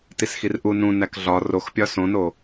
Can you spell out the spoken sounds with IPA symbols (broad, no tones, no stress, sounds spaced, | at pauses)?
t i s x i r ʔ u n ũ n æ k ɮ ɒ r o x pʲ ɒ s õ n o